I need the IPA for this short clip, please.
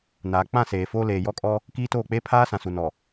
n aː˨ k͡p ã˦˨ s eː˨ f oː˦ l eː˨ j ɔ˦ kʼ ɔ˦ | k iː˦ t oː˦˨ k͡p eː˦ pʰ aː˦ s ã˨ s u˨ n ɔ˨

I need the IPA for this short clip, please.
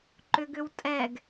ǃ ʏ ɡ ʏ w tʼ ɛ ɡ

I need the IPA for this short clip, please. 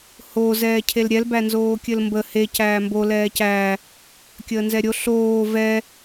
h o z ɛː cʰ e l ɾʲ ɛ l b æ n z oː kʲ ɘ l m b ə h e c æː m b o l ɛː c æː | kʲ əː n z ɛ ɾʲ o ɬ oː v ɛ

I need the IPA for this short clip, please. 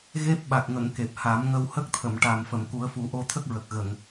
ɣ e˦˥ p̚ ɓ a˨˩ k̚ ŋ ə˨˩˨ ŋ k e˨˩ p̚ h a˨˩˦ m ŋ ə˧ w h ə˦˥ k̚ t̪ʰ ə˨˩˨ m ʈ a˨˩ m f ə˨˩˨ m k u˨˩˦ ə̯ f u˨˩˦ ʔ o˧ t̪ʰ ə˦˥ k̚ ɹ ə˨˩ k̚ ɣ ə˨˩˨ ŋ

